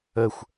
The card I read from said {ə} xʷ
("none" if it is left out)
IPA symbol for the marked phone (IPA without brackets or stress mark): ə